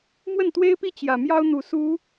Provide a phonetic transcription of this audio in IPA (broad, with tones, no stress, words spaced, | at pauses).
mwə˥˩nt̪we˥ɪ̯pi˥ t͡ɕjä˨˩ mjɑ˥ʊ̯n̪u˨˩ su˧˥